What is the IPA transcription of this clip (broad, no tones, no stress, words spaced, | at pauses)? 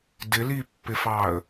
dɪlipːɪfɑə̯